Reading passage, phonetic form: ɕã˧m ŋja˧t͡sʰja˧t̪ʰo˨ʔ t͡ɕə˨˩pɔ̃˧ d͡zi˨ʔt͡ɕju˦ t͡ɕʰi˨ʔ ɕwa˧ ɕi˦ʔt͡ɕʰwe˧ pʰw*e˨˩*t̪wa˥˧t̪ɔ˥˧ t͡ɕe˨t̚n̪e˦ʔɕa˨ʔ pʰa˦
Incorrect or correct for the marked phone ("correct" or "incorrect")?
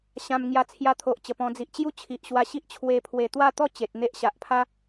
correct